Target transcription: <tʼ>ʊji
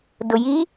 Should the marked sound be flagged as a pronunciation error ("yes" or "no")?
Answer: yes